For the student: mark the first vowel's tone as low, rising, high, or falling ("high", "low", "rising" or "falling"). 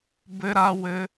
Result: high